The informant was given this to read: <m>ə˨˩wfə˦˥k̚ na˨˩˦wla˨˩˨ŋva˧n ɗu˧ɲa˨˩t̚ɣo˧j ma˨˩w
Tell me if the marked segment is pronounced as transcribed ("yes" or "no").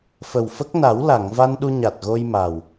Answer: no